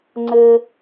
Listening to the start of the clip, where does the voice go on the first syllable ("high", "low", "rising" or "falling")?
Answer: high